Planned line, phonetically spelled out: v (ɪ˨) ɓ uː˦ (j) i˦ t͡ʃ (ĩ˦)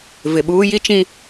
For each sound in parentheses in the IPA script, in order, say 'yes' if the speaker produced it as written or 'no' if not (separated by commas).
yes, yes, yes